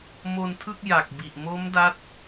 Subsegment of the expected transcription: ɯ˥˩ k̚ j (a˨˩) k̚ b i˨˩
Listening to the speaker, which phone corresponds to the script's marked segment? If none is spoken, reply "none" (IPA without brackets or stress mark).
a˨˩